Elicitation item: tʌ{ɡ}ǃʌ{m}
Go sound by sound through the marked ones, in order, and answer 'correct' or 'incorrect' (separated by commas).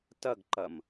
correct, correct